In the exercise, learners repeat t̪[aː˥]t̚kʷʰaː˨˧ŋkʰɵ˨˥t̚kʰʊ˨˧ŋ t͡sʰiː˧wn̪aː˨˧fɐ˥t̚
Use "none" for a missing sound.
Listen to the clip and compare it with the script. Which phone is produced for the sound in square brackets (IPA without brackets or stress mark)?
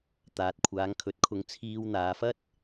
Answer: aː˨